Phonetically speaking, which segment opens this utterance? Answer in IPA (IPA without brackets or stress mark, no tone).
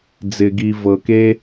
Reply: d͡z